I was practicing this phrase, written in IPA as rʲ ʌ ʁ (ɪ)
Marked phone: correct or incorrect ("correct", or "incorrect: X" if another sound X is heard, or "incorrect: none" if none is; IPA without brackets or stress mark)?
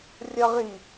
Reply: incorrect: i